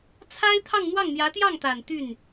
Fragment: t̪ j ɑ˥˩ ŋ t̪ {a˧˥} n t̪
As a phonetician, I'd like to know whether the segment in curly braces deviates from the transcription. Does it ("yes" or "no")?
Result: yes